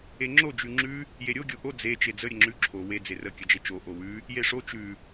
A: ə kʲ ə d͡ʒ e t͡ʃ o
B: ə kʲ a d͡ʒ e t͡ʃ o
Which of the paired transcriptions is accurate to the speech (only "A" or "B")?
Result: A